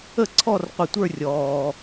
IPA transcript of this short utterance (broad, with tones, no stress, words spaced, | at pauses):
ə˥˧ǀʰɔ˥˧rqʷə˧˩tʷə˞˥˧ rʲɔː˧